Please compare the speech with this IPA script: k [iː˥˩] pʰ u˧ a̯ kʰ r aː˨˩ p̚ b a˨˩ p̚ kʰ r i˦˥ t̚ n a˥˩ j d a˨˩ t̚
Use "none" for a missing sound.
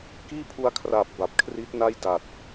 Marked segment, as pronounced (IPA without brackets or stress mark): iː˥˩